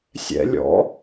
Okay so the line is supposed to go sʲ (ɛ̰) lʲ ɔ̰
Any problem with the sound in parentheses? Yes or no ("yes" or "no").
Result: no